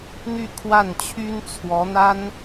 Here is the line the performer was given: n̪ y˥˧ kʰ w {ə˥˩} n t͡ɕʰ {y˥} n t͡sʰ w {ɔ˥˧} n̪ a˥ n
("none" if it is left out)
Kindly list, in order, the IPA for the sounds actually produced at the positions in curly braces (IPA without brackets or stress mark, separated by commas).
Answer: a˥˩, y˥, ɔ˧˥